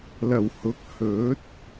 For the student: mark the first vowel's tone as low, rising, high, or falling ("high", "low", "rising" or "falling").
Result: low